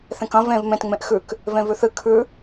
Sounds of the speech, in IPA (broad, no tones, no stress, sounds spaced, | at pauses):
θ ẽ k ɐ̃ v ẽ v m ẽ t ŋ͡m ẽ ʔ x ʉ k | v ẽ v ʉ θ ɨ kʰ ʉ